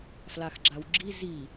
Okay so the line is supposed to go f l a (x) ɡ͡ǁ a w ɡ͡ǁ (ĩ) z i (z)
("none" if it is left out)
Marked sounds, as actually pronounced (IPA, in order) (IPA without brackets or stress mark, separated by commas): x, i, none